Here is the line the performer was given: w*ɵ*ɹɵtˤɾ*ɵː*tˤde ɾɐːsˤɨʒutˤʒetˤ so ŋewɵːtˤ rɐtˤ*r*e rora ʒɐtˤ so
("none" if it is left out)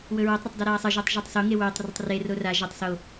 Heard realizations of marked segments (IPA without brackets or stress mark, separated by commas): ɵ, ɵ, r